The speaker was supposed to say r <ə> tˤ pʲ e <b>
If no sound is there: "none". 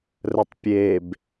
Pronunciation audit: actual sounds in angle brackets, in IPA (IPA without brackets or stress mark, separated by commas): ə, b